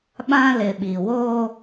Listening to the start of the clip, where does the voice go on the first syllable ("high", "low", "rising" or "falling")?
high